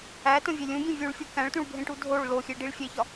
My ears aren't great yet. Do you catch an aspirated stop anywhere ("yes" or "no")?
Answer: no